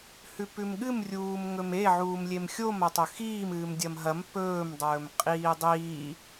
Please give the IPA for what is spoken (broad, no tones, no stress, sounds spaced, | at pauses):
h ʉ p ʉ m ɠ ɨ m rʲ uː m ŋ ɵ m e ʕ uː m lʲ e m xʲ o m ɐ tˤ ɵ x iː m ɨː m dʲ ɐ m ɦ ɐ m p ɵː m dˤ ɵː m qʼ iː dˤ iː